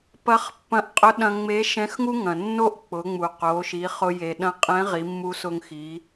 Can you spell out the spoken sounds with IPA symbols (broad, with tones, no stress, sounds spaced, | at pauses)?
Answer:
p ɐ˧˥ χ pː ɐ̃˧ ʔ qʼ ʊ˧˥ ɗ ɐ̃˧ ŋ͡m e˧˥ ʃ ɛ̃˧˥ x ŋ u˥ ŋ ɐ̃˩ nː o˥ ʔ k͡p ʊ˩˧ ŋ͡m u˩ q o˩˧ ʃ i˩˧ χ ʊ˧ j e˩ ɗ ɐ̃˧ qʼ ɛ̃˧˥ ʁ i˩˧ mː u˧ s ʊ˧ ŋ x i˩˧